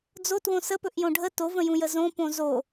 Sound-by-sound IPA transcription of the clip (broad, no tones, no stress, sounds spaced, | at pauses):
d͡z o t w õ s ə p ɵ ʔ j õ ɖʱ ə t o v ə̃ j ũ j ə z õ p õ z o